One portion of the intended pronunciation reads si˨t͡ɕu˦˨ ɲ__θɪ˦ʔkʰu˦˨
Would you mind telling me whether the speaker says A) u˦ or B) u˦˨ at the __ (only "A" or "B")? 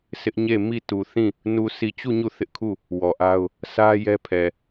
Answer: B